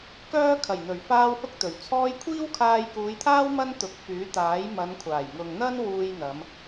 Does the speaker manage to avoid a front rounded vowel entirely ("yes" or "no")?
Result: no